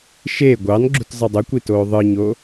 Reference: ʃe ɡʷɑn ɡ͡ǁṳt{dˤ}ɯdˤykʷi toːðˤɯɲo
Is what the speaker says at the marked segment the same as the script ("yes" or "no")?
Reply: no